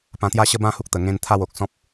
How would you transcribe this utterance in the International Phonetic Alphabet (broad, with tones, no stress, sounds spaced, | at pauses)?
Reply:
p ã˧ t̪ j a˦ ɕ ə˦ b ã˥˧ h u˦ k̚ t̪ ə˨˩ ŋ ẽ˧ n t̪ʰ a˥˧ w o˨ k̚ s ɔ̃˦ p̚